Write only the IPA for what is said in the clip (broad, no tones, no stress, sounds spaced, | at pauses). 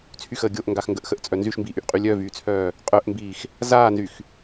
t͡sʰ y x əː ɡʲ o ʔ ŋ ɡ a x ŋ ɡ ə ʔ x ə ʔ t͡sʼ œ n z y ʃ m b iː ʔ y ʔ qʼ y lʲ œ v yː t͡sʰ œː | qʼ œ ʔ m b iː x | z aː n z y x